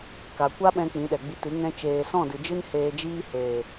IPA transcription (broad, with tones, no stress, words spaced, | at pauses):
ka˨kʷa˦ɓɛ̃˧ k͡pĩ˨˦ɗɛ˨ɡ͡bi˧tɨ˨˦ ŋɛ̃˧ t͡ʃeː˨sɔ̃˦˨dɨ˨d͡ʒɨ˦n heː˧d͡ʒiː˦ heː˨